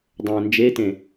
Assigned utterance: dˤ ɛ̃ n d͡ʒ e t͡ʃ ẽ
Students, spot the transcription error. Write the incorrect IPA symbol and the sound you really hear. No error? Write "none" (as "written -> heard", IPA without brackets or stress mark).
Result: t͡ʃ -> t